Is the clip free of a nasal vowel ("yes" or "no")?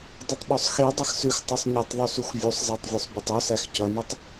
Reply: yes